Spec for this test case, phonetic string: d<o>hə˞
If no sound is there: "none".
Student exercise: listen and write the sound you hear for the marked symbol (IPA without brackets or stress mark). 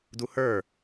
u